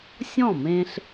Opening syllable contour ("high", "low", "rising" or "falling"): falling